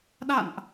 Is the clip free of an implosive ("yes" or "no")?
no